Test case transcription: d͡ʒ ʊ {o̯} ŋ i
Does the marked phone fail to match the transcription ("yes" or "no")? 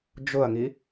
yes